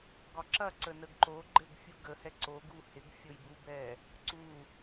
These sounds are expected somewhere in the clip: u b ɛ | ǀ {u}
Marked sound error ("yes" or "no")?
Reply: no